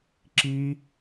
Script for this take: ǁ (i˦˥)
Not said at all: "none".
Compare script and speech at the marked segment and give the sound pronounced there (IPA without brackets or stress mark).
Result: i˦˥